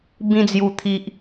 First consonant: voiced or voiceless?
voiced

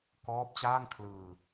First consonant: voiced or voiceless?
voiceless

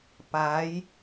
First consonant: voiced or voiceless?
voiceless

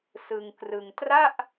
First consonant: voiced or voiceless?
voiceless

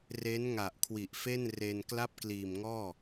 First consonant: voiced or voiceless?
voiced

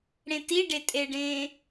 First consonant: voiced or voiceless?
voiced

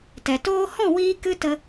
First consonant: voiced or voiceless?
voiceless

